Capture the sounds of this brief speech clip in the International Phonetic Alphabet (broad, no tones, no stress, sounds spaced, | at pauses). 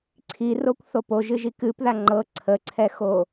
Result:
ǀʰ i r o kʷ θ o p o ʒ ɨ ʒ i k ɨ p ð a ŋ͡ǃ ɤ ǀʰ ə ǀʰ ɛ x o